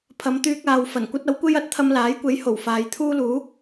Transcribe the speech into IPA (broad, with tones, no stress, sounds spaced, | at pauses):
pʰ ɐ˨˧ m t̪ yː˧ k̚ aː˨ w f ɐ˨˩ n kʷ ɐ˥ t̚ ɐ˨˥ w kʷ e˥ j ɐ˨˥ t̚ t̪ʰ ɐ˧ m l aː˨˥ j kʷ e˨˥ j h o˨˩ w f aː˨˧ j t̪ʰ uː˥ l uː˨˥